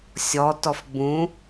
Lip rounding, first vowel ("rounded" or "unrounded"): rounded